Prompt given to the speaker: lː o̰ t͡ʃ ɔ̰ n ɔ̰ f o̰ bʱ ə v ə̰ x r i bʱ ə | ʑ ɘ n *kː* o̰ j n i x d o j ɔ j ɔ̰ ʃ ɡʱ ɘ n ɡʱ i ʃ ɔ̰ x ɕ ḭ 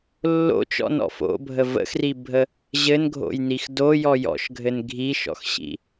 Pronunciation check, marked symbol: incorrect: ɡʱ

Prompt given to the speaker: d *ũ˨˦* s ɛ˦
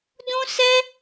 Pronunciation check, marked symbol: incorrect: ũ˦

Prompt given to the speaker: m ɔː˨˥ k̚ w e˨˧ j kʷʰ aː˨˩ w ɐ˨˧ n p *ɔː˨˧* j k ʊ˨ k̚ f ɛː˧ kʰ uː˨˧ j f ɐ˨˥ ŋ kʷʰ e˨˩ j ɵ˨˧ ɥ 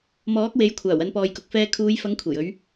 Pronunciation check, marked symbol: incorrect: ɔː˨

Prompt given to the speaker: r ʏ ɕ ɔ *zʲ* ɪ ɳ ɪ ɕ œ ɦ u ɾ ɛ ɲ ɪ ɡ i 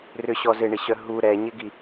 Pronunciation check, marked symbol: incorrect: z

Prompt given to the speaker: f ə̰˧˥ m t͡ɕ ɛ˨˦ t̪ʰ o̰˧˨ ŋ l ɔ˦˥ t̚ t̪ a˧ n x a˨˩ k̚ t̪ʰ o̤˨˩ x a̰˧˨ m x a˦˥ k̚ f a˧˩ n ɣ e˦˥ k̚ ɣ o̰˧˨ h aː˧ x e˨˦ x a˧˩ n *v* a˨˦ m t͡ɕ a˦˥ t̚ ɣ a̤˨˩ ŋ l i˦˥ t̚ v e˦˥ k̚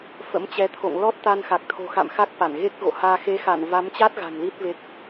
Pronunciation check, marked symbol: correct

